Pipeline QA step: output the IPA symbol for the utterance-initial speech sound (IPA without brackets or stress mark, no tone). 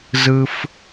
z